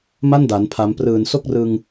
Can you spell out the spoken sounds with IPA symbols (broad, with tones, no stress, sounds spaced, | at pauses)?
m a˥˩ n d a˩˦ n pʰ a˩˦ m p r ɯː˨˩ n s o˥˩ k̚ r ɯ˧ ŋ